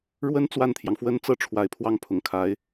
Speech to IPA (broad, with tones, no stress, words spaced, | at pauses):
ɻwə˥n t͡swa˥˩nt̪ʰjɑ˩ŋfwə˥n t͡sɤ˥ʈ͡ʂʰwa˨˩ɪ̯pʰwɑ˥˩ŋ pʰʊ˨˩ŋkʰa˧˥ɪ̯